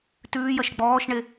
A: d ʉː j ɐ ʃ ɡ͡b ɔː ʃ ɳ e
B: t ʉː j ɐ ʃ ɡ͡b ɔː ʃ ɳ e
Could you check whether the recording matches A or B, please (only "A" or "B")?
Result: B